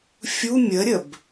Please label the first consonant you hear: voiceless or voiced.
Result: voiceless